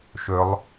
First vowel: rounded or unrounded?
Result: rounded